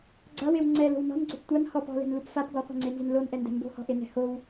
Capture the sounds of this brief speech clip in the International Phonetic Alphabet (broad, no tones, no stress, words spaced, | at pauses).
ɡ͡ǀawew ŋ͡ǀɛlo̤w nɔ̤nɡ͡ǀop tʷan hɔp ɔ̤lɛ̤nlup fap ɡɔqʷɛ̤ŋ͡ǀenzɪn lonʔɛndɛ̤ mbo̤hɔ̤ʔenɛ̤ how